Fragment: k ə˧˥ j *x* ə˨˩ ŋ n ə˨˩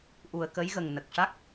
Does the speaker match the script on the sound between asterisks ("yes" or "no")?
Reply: no